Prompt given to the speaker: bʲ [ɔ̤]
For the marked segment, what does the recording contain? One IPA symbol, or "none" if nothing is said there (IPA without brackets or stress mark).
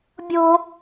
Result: o̤